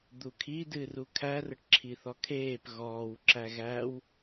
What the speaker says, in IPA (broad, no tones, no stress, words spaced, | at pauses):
d̪ukʰi dɨːrukʰær əʈǁʰiθɔkʰeːp ɣɔːw ǁæɣæw